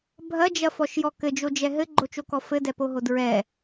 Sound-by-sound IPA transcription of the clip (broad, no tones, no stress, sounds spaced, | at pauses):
bʱ ɐ d͡ʒ ɐ f ɔ ʃ j ɔ k ɘ d͡ʒ o d͡ʒ ɛ ɦ ɘ ɡ͡ǃ o t͡ʃ o k ɔ f ɘ d ɛ p o ɦ o d ɹ ɛ